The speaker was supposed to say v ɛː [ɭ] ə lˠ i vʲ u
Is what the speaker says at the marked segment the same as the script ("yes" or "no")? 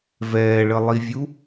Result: yes